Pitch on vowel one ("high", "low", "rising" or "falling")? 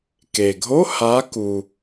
low